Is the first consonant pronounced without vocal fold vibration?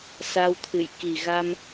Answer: yes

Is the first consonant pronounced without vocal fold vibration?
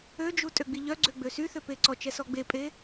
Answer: no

